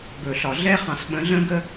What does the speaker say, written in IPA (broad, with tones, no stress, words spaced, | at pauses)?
bɵ˨ɬɒ˨ ɮɛ˦χɑ̃˨sɓə̃˨˦ɮə̃˦ ɡə˦